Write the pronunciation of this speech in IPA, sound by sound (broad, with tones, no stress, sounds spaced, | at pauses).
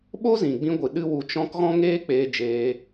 ɓ o˦ z ĩ˨ ɡ͡b ĩ˧ ɡʷ ɨ˨ ɗ ɨ˦ w u˧ t͡ʃ ɔ̃˦ k ɣ ɔ̃˦ ŋ eː˦ k͡p eː˧ d͡ʒ eː˧